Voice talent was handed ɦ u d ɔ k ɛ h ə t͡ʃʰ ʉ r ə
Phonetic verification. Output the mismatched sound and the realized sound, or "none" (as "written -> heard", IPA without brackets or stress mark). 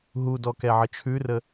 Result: h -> ʕ